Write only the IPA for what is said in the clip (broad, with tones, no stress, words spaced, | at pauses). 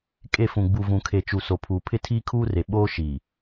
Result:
kʼe˦˨fũ˨ ɡ͡bu˨vũ˨kʰe˨t͡ʃu˨ so˨pʰuː˨ pʰɪ˦tʰiː˦kʰuː˦re˨ ɓoː˦ʃiː˨